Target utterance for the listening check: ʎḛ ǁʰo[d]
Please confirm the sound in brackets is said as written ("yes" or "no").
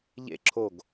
no